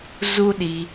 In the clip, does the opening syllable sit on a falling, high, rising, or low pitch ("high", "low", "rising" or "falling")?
high